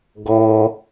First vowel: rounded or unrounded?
rounded